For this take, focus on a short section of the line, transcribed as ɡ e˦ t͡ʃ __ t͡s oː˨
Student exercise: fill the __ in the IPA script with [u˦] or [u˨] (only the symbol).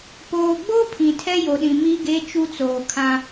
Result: u˦